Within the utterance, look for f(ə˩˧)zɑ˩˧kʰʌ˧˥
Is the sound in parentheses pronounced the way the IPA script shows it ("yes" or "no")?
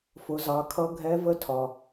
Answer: no